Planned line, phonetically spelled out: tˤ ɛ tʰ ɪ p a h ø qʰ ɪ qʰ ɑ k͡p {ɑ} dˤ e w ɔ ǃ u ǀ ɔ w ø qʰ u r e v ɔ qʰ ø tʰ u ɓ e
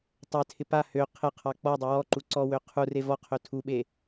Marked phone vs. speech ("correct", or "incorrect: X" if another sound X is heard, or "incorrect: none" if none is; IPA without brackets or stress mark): incorrect: ɔ